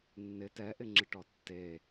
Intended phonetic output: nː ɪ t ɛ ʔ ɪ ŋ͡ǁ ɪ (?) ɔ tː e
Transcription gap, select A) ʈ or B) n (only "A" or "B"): A